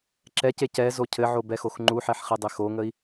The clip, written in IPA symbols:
ǁ ɛ c e c ɛ z o cʰ ɘ ʕ o b ɛ x o x ŋ͡ǃ u ħ ɛ ħ χ e dˤ e x o ŋ ə i̯

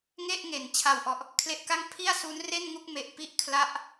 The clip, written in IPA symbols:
ŋ e˥˩ ʔ ŋ e˩˦ n t͡ɕʰ a˨˩ w ʔ ɔ˨˩ ʔ | kʰ l e˦˥ ʔ k a˥˩ ŋ pʰ i˥˩ a̯ s u˦˥ n r e˥˩ n ŋ u˥˩ k̚ m e˨˩ ʔ p i˥˩ ʔ kʰ l a˦˥ ʔ

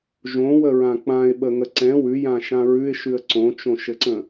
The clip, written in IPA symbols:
ʒ õ w ə ɹ ã k͡p ã ɪ̯ ɓ ə ŋ ə ǀ ɛ̃ w ʉ j ã ʃ ã ɹ ʉ ɪ̯ ʃ ʉ ə̯ ǀ õ t͡ʃ õ ʃ ɘ ǀ ə̃

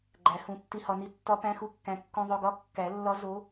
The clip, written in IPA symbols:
ɡ͡ǃ æ˨˩˦ h ũ˨˩˦ tː i˧ h ɒ˧ n i˧ tː ɒ˧˥ p æ̃˧˥ x u˧˥ kː æ̃˧ kː ũ˧ ðˤ o˧ ɡ ɒ˧˥ kː æ˨˩˦ lː ɒ˧˥ z o˧˥

